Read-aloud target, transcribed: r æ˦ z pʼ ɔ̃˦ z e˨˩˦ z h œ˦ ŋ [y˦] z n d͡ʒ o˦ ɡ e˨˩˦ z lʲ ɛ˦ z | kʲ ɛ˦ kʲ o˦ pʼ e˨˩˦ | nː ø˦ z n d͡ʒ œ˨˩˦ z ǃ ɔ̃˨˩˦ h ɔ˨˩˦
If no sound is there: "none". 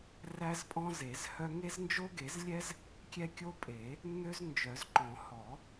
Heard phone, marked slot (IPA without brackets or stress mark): e˦